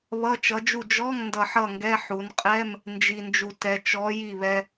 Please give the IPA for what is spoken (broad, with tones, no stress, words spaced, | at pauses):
βʌ˧˥˧t͡ʃʌ˨˥d͡ʒu˥˨ d͡ʒɔ˧˥˧ŋ ndʌ˧ħʌ˥˨ŋɡɛ˧˥˧ ħu˩˧nqʼɛ˧˥˧m | nd͡ʒi˧nd͡ʒu˧ tɛ˩˧t͡ʃɔ˨˥ ji˥˨βɛ˧